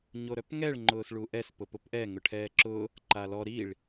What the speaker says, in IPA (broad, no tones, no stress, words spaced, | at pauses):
ɲoɾœpŋɛɭ ŋ͡ǃʊːsɭuʔɛs pʊpʊpʔɛ ŋʊʈʰɛːǁʊ | ǃalɔ ɾiɭ